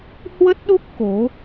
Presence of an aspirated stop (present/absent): absent